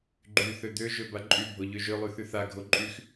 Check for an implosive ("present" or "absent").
absent